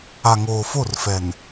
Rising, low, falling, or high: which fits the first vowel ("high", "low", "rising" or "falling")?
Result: low